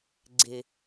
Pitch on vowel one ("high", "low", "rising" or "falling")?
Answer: low